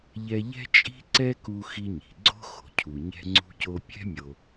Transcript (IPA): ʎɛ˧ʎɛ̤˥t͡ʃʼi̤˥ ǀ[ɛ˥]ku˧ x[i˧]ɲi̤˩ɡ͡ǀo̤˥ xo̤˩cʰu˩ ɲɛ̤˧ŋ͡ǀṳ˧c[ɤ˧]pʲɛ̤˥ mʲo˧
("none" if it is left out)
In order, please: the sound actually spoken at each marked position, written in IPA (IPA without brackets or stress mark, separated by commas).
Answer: ɛ˥, i˧, o˧